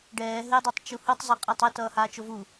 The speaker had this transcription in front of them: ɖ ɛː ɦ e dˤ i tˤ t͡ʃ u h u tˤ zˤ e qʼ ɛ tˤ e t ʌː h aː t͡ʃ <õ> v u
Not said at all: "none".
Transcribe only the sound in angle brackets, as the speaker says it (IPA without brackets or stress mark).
o